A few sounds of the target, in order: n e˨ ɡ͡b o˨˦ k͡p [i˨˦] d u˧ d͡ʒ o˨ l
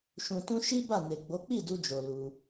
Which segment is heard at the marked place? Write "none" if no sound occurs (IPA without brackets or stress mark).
i˦˨